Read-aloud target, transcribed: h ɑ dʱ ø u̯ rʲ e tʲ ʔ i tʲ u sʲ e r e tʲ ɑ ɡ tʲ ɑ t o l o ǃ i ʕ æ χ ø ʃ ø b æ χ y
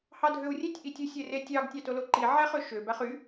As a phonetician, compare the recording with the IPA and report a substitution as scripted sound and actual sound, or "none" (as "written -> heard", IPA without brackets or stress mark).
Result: none